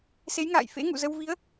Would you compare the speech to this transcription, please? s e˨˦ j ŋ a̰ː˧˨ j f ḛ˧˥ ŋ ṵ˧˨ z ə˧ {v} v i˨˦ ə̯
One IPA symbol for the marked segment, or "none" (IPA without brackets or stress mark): w